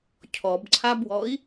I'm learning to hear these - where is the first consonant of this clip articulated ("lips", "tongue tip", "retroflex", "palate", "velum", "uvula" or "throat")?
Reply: palate